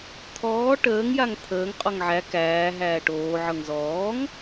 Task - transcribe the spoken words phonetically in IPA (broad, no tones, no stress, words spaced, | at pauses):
t̪ʰɔː ʈəːŋjaŋ t̪ʰəːŋqʼɔŋ ʕæ kæːɦæː ʈoːʕɤŋ zɔːŋ